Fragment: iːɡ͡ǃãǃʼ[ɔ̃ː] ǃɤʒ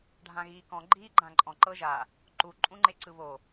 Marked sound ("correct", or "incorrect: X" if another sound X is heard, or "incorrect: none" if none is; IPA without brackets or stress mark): incorrect: ɔ̃